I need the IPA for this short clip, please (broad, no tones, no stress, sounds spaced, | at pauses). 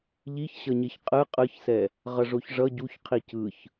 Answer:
ʎ i ç ɕ ʌ ɲ e ç qʼ ɯ qʼ ɯ ç s ɛ | ʁ ʌ ʐ o ç ʐ ʌ ɟ u ç qʰ i c ɯ ç